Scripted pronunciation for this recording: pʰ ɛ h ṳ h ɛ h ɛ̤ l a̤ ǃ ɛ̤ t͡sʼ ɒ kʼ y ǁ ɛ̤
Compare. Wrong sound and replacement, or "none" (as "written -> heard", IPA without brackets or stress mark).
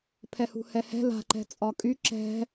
none